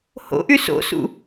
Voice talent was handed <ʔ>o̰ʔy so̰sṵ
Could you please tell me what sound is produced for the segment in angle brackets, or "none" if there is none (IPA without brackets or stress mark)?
h